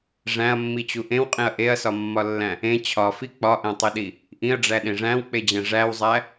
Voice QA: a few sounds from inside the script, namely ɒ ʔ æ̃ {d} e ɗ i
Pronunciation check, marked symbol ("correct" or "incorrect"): incorrect